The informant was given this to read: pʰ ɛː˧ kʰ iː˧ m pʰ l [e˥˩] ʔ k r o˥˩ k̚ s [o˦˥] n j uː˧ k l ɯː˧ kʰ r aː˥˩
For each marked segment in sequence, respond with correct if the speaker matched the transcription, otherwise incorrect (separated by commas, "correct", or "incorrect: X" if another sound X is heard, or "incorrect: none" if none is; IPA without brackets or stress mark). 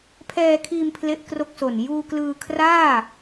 correct, incorrect: o˨˩